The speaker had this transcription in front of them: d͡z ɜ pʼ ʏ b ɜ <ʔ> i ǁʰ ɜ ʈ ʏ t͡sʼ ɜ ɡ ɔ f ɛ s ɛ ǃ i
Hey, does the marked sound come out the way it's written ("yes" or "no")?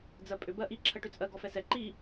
yes